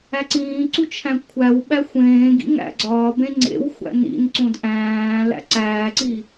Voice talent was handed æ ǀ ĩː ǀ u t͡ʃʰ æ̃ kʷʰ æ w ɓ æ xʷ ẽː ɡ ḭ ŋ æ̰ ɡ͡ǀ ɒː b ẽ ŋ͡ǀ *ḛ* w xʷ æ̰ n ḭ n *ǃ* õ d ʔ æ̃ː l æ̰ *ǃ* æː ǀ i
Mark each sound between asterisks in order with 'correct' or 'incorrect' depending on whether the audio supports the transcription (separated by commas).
correct, incorrect, incorrect